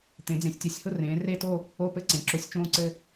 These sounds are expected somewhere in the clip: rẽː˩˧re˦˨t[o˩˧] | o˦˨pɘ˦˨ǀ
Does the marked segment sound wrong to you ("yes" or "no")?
yes